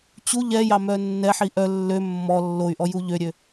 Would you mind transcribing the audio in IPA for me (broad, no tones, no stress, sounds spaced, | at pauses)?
t͡ɕ u ʎ ɛ j ɑ m œ nː ɛ ħ i ʔ œ lː ø mː ɔ lː o y̯ ʔ ɔ j u ʎ ø ɾʲ ø